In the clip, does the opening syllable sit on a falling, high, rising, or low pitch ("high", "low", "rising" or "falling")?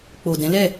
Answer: low